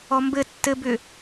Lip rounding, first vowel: rounded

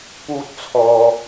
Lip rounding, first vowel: rounded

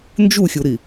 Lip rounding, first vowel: rounded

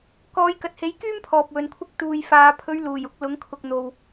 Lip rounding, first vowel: rounded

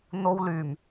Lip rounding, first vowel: rounded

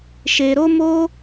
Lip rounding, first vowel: unrounded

